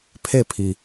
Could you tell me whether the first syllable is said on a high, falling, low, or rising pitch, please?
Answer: falling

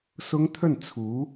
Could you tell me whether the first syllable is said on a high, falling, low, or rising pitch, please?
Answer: high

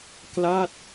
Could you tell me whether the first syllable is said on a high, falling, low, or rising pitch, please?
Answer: falling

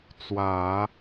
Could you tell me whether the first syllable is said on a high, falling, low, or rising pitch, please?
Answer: low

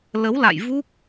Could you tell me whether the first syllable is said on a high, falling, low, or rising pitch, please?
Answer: rising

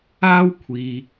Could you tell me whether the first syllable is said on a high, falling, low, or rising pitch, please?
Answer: high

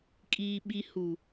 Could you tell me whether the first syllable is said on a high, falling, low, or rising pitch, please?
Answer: low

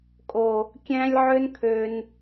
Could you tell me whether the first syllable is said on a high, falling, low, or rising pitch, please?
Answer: low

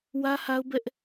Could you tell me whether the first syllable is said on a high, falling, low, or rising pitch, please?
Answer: high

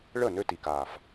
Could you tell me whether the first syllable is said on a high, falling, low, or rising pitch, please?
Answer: falling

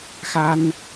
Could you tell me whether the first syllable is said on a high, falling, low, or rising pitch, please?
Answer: high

